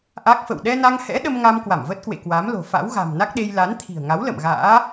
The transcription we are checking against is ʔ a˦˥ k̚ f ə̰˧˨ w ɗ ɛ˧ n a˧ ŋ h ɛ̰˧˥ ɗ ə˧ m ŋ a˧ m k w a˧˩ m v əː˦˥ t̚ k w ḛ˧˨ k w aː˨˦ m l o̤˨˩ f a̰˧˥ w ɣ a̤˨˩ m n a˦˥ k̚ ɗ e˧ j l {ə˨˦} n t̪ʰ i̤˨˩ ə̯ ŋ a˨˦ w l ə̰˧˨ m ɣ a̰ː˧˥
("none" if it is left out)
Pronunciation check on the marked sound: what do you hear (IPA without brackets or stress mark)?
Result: a˨˦